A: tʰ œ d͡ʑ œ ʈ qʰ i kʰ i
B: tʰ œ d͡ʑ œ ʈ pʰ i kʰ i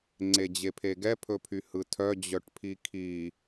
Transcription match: B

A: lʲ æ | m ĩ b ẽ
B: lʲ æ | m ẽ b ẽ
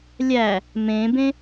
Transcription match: B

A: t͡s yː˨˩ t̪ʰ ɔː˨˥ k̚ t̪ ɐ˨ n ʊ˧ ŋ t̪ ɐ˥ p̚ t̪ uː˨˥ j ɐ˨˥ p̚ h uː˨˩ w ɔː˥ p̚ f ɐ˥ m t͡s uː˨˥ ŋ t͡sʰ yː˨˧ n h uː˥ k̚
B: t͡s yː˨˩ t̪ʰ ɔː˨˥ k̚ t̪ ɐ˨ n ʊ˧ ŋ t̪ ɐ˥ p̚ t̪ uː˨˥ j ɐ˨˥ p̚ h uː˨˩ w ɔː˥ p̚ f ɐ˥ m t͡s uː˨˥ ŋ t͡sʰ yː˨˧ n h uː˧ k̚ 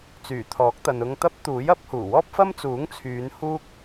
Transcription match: A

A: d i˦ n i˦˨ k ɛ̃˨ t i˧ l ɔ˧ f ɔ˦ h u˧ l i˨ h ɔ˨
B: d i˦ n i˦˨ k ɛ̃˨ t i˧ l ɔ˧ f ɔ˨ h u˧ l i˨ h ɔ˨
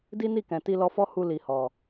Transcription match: A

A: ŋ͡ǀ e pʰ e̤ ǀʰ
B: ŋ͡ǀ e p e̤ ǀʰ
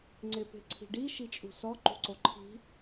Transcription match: B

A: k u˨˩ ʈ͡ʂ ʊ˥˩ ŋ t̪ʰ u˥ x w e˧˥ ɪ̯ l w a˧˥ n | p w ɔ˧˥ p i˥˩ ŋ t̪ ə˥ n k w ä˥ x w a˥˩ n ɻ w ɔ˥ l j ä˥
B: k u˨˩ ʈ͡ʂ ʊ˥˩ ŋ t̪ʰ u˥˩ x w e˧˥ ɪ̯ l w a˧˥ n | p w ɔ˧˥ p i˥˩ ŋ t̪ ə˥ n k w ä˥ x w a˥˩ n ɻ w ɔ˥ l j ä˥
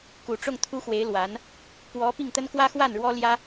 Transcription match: A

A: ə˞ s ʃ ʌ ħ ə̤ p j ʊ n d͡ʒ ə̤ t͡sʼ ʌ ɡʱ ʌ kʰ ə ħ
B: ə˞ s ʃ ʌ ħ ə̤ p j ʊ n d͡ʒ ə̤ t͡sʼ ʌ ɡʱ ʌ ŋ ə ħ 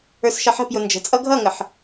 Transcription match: B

